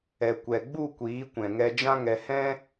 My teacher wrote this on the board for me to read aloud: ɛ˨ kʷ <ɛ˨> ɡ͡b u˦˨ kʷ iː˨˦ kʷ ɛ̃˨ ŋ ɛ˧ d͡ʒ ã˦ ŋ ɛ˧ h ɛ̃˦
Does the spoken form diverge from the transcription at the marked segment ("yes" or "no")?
no